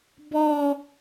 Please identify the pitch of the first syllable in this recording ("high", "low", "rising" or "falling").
high